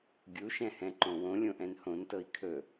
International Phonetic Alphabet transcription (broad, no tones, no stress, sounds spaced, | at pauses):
ɡʲ u ʃ ɛ̃ h ɛ̃ ǃ õ w õ lʲ õ ʔ ɛ̃ n h õ n t ɤ i̯ kʰ ɵ